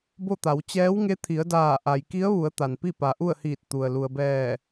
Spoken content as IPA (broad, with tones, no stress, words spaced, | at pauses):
bo˥˨t̪a˩˧w t͡ɕɛː˧˥wŋe˧˥ t̪ʰi˩˧ə̯daː˧˩ ʔa˩jki˧˥ə̯ʋu˩˧ə̯ t̪a˩npi˥˨ pa˩ʔu˥˨ə̯hiː˧˩t̚ t̪u˩ə̯ lu˩ə̯bɛː˧˩